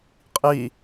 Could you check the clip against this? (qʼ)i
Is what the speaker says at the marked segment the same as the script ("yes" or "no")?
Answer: yes